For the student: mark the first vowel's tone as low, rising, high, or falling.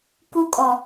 high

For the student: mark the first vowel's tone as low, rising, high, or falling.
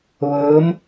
rising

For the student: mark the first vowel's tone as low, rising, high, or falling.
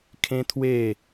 high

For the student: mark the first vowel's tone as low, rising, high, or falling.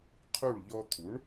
falling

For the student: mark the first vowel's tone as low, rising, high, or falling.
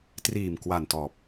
low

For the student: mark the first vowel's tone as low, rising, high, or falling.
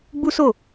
high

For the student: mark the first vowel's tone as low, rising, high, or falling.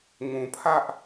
low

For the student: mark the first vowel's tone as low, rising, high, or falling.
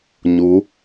rising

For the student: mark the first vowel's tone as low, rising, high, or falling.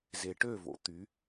low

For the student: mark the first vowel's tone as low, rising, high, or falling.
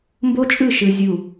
high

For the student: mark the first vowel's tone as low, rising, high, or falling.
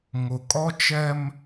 low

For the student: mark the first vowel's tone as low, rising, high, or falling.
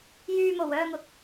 low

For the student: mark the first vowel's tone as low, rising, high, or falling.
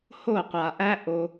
falling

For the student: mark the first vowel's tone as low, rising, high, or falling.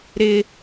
high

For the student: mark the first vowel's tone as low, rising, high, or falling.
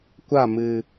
falling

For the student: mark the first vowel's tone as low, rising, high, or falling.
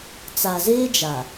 low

